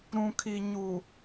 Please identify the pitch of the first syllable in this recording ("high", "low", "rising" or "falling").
low